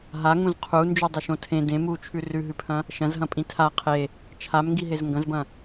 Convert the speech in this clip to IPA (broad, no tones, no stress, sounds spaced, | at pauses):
ɦ a ŋ ũ z qʰ u n d͡ʒ ʉ dˤ ɵ ʃ õ tʰ ẽ d ẽ m u t͡ʃʰ ʉ r ʉ ɦ ʉ pʰ ɐ̃ | ʃ ɐ̃ z ɦ ɐ̃ pʼ ĩ tʰ a qʰ e | t͡ʃʰ a m ŋ ɡ i ɦ e z ŋ ɡ ɐ̃ z b ɐ̃